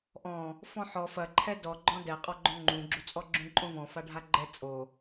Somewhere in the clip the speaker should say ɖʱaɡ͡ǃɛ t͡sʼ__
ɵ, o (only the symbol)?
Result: o